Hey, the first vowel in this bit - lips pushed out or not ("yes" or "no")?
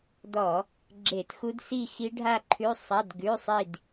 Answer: yes